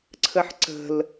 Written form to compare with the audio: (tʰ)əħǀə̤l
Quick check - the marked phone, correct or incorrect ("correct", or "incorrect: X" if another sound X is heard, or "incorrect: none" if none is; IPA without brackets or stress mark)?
incorrect: ǀʰ